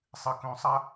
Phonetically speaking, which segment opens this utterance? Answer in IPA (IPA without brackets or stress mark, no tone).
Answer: sˤ